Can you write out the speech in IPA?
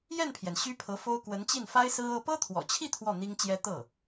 j ɛ˥˩ n pʰ j ɛ˩ n ɕ y˥ pʰ ɤ˧˥ f o˥ ʊ̯ k w ə˧˥ n t͡ɕ i˥˩ n f a˥ ɪ̯ s ɹ̩˥ ɤ˥ p ɤ˥ t̪ʰ w ɔ̰˨˩ t͡ɕʰ i˥˧ t̪ʰ w ɔ˥˩ n̪ i˥ ŋ t͡ɕ j ɛ˥ t̪ ɤ˥˩

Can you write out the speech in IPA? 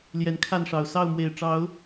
l j ɛ˨˦ n kʰ a˥˨ n ʂ ɑ˨˩ ʊ̯ s ɑ˥˨ ʊ̯ m w e˨˩ ɪ̯ ʈ͡ʂ ɑ˨˦ ʊ̯

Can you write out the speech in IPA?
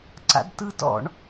ǀ a̰ d t ɯ t ɔ̰ ɳ

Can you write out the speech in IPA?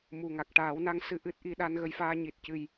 m u˨˩ ŋ a˨˩ k̚ ʈ aː˨˩˦ w n a˧˥ ŋ s ɨ˧ ʔ ɨ˦˥ t̚ ʔ i˧ ɗ a˧ n ɣ ə˧ j f aː˧ ɲ i˨˩ t̚ c ɨ˨˩ j

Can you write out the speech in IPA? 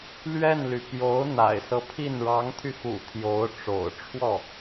l ɥ ɛ˥˩ n l y˩ p j o˧˥ ʊ̯ n̪ a̰˨˩ ɪ̯ s ɤ˦ pʰ i˥˩ n ɻ ɑ˧˥ ŋ t̪ʰ y˧ x ṵ˨˩ t̪ʰ j o˧˥ ʊ̯ ʈ͡ʂ o̰˨˩ ʊ̯ ʈ͡ʂʰ w ɔ˥˩

